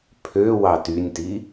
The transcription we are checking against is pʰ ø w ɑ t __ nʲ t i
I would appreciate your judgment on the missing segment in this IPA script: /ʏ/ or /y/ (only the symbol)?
y